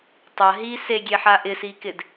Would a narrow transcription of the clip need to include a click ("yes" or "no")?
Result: no